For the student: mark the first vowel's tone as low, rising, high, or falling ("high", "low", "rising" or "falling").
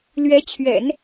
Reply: rising